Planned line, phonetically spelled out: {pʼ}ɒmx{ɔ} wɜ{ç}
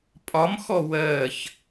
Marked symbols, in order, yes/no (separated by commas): yes, yes, yes